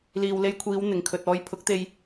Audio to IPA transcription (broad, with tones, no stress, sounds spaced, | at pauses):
l iː˨ w l e˧ j kʷʰ iː˨˧ w n̪ ɪ˨˩ ŋ kʰ ɵ˨ t̚ ɔː˨˧ j pʰ ʊ˨˥ k̚ t̪ e˧ j